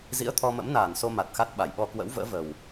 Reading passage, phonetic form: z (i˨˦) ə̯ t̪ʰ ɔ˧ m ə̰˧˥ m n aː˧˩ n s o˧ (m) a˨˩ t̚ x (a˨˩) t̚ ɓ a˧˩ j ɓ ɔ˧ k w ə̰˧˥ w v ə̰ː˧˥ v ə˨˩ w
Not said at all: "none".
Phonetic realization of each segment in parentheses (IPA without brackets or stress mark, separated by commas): ḭ˧˥, m, a˦˥